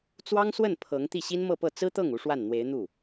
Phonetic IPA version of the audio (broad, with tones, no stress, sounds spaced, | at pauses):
t͡s w ɑ˥ ŋ s w ə˥˩ n pʰ ɤ˧˥ ŋ t̪ i˥˩ ɕ i˥ n m ɤ˥˧ p ɤ˥˩ t͡s ɹ̩˥ t̪ ɤ˥˩ ŋ u˧˥ ʂ w a˥˩ n n̪ w e˧˥ ɪ̯ n̪ u˥˩